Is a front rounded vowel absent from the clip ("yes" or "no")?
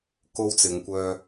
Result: no